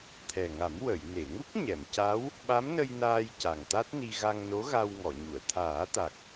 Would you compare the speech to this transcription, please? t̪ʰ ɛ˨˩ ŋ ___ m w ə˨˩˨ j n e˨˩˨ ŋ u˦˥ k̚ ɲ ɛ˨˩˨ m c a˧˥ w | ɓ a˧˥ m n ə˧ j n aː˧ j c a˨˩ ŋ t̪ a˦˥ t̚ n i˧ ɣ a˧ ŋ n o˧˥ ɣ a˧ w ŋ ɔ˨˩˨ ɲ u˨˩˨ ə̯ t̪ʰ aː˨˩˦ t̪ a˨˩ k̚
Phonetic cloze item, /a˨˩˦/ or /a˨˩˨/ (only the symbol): a˨˩˦